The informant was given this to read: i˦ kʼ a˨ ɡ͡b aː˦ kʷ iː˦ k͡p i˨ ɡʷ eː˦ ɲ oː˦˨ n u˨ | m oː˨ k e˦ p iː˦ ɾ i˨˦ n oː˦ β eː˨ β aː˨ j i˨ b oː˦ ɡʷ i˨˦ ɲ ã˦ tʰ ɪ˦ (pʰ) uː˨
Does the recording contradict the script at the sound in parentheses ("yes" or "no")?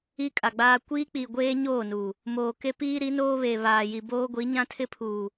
no